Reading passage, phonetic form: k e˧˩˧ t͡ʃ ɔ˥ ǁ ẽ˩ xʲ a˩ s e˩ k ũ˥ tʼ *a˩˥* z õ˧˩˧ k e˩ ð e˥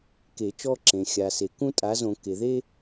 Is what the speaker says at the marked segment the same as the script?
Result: yes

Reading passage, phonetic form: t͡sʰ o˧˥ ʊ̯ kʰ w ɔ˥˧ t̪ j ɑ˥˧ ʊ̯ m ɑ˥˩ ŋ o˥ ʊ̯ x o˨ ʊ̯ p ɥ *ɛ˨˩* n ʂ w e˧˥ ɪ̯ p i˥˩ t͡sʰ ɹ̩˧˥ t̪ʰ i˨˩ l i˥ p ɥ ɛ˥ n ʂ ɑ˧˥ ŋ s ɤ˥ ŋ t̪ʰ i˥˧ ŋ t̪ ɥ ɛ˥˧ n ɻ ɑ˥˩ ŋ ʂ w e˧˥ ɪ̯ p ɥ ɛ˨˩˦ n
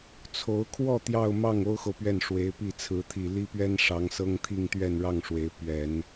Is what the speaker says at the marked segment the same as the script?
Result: no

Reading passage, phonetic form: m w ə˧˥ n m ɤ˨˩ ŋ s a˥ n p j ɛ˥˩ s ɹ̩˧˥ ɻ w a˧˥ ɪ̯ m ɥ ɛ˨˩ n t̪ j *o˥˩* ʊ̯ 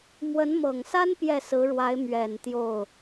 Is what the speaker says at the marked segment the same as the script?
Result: yes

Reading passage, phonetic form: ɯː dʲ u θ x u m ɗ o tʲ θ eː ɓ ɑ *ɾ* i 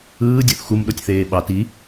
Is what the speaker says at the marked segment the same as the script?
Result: no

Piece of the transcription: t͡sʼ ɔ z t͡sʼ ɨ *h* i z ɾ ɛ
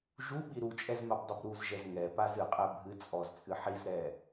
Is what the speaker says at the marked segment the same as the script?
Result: no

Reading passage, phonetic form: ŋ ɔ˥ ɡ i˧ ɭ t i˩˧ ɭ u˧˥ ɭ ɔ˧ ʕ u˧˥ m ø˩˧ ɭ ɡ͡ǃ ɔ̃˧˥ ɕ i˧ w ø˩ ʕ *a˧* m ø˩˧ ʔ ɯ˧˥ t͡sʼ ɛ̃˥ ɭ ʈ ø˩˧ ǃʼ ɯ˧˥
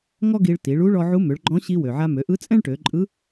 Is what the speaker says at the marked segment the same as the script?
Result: yes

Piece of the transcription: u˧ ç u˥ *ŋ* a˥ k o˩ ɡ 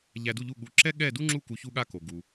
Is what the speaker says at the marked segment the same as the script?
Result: no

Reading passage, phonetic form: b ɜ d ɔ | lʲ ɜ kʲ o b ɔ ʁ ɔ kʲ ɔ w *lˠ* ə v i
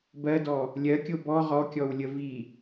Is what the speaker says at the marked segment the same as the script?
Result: no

